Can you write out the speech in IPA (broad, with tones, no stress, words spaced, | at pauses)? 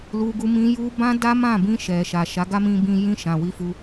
lu˧ɡu˧mĩ˧ ju˧ bã˦da˦mã˦˨bĩ˧ ʃɛ˨ʃa˨ ʃa˨˦ɡa˦mĩ˧bĩ˧ jĩ˧ ʃã˨wi˧fu˧